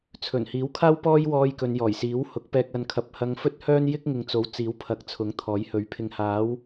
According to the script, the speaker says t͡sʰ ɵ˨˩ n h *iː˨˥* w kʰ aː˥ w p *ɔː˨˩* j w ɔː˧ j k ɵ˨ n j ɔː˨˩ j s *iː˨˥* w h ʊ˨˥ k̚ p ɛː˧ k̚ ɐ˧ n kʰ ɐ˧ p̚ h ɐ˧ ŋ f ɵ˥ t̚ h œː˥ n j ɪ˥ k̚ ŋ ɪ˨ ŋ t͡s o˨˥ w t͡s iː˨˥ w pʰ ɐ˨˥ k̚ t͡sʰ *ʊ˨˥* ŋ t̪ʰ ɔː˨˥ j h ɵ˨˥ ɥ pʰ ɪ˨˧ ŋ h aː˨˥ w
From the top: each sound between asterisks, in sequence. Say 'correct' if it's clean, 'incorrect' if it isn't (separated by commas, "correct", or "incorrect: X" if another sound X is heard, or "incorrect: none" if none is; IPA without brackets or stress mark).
correct, incorrect: ɔː˥, correct, correct